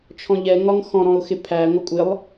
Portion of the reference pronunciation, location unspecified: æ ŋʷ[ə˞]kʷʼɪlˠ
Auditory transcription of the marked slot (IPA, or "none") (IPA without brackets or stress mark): ʌ